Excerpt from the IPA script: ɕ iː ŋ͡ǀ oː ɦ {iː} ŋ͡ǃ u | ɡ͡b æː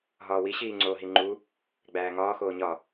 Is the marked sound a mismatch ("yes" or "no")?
yes